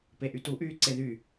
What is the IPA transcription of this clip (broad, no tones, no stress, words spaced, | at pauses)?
peʔytuʔyː ǀeðy